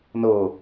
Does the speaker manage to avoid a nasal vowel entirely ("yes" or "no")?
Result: yes